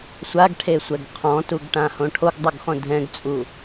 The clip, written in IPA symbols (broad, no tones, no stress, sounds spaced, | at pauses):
sʷ a ɡ ʈʰ e sʷ ɛ ɡ qʰ ɔ̃ t u ɡ ʈ ã h õ ʈʰ o ɡ dˤ ɯ ɡ χ õ dʱ ɛ̃ ɡ t͡sʼ u